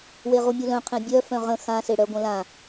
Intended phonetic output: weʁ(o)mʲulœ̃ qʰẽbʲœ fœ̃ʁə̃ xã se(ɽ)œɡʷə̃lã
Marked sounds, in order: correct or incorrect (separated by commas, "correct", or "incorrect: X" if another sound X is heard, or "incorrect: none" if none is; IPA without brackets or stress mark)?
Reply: incorrect: u, correct